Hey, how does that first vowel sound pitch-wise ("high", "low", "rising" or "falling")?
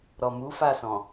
low